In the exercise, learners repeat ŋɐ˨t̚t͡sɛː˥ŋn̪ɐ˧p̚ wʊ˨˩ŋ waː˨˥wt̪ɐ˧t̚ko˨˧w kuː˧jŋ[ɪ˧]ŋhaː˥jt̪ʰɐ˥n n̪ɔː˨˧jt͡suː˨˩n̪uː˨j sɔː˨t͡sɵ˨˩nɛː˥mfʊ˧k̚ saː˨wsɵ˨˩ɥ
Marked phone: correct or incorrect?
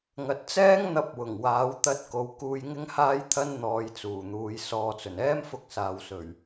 incorrect